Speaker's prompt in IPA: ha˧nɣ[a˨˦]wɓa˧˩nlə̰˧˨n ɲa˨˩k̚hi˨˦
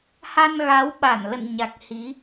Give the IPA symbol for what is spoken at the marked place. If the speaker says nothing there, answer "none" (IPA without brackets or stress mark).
a˨˦